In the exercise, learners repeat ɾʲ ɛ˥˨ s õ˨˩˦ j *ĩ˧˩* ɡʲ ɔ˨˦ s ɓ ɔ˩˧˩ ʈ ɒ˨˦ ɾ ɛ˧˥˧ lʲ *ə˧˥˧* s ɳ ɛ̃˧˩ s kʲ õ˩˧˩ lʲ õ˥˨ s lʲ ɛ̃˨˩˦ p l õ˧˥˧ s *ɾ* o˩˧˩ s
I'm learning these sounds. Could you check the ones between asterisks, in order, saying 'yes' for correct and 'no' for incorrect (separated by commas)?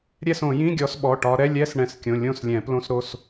no, no, yes